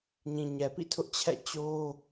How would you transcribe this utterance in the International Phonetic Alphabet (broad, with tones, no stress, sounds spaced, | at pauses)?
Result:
ɲ ĩ˨ ɲ ɛ˨ p ḭ˦˨ tʰ ʊ˦ ʔ t͡ɕʰ ɛ̰˦˨ t͡ɕ o˦